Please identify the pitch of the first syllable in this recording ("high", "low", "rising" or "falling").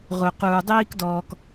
low